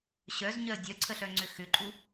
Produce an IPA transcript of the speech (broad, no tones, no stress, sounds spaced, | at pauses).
ɕ œ z ɲ œ ə̯ dʲ œ ǀʰ ə ɬ œ ŋ͡ǀ ʏ x ʏ ǃʼ u